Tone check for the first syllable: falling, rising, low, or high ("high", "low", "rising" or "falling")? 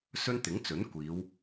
high